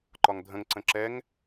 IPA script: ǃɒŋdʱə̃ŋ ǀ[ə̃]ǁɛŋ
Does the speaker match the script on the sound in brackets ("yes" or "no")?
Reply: yes